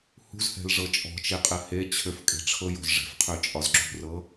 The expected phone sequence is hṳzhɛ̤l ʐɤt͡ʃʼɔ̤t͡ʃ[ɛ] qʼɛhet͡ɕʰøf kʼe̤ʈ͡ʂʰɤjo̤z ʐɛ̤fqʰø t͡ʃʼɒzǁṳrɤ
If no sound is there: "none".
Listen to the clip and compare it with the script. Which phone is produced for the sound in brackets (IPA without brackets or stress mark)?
e